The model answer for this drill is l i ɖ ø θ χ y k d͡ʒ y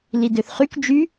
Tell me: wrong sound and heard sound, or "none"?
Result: ɖ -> d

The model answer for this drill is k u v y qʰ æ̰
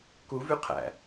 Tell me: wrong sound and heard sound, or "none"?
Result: none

